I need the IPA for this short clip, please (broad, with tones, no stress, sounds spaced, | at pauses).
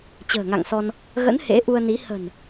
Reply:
t͡ɕ ə̤ː˨˩ ŋ a̰˧˨ ŋ s ɔ˧ n | ɣ ə̰˧˥ n h ḛ˧˥ ʔ u˧ ə̯ n i˨˦ h ə̤˨˩ n